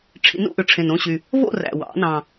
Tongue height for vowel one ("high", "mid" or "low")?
high